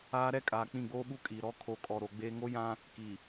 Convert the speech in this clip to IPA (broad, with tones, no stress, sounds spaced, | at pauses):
aː˦ ɾ ɛ˦ kʼ aː˨ k͡p ĩ˦˨ ɡ͡b oː˦ ɓ u˦ kʼ iː˨ ɾ ɔ˦˨ kʰ o˨ kʼ ɔ˨ ɾ o˨ ɡ͡b eː˦ ŋ o˦ j ã˦ | k i˨